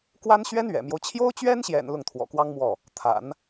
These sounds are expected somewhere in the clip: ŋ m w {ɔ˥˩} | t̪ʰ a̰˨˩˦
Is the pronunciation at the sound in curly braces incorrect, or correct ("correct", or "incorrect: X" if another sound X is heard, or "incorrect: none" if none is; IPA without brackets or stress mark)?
correct